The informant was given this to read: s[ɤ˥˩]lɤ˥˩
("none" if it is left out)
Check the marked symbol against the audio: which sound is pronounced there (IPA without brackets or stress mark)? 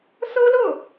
ɤ˥